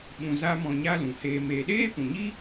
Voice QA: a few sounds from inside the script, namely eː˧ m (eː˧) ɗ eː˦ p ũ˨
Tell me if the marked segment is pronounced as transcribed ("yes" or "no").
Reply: no